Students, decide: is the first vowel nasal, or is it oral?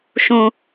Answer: nasal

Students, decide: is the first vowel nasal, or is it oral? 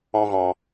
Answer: nasal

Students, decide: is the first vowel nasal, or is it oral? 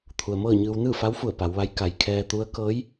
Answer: oral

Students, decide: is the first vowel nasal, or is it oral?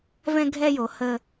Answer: nasal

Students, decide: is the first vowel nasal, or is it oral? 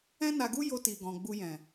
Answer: nasal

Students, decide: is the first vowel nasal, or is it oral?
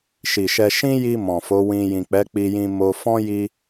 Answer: oral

